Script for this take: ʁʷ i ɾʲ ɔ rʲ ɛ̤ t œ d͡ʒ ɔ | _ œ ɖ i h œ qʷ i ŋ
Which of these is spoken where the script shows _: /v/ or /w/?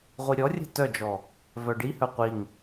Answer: v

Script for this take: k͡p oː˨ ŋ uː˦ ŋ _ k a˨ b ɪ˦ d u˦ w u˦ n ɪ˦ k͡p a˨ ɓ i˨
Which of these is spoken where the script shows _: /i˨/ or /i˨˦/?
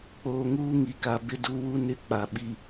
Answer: i˨˦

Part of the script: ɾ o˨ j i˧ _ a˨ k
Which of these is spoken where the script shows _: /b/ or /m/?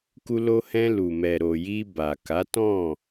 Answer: b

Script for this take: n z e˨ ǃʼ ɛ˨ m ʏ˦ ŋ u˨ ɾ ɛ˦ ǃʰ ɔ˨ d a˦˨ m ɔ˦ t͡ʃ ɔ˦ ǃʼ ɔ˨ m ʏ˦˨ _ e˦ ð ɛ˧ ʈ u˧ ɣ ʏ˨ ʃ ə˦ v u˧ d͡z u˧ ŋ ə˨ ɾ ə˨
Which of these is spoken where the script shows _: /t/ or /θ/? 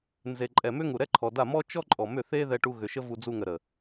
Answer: θ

